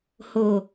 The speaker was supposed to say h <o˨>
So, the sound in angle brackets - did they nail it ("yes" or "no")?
yes